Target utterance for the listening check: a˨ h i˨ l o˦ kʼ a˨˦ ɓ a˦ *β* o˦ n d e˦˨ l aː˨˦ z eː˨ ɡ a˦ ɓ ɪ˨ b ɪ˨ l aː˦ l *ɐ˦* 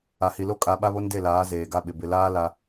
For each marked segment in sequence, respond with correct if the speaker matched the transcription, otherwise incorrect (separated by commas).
correct, incorrect